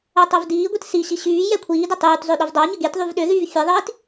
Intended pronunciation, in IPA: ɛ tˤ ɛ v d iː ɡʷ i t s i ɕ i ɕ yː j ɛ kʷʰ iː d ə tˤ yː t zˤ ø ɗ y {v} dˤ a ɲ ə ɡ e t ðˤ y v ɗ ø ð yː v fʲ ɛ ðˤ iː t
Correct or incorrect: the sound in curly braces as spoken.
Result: correct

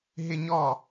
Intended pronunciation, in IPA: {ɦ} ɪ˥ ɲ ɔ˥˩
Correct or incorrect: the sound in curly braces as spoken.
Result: correct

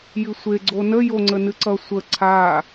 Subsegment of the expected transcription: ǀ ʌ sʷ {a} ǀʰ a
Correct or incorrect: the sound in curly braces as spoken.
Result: incorrect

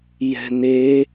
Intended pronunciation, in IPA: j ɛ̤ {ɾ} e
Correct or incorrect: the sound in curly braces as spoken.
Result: incorrect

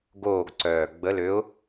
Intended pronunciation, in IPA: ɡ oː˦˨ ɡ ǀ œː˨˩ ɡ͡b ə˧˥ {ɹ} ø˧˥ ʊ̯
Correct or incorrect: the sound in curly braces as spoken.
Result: incorrect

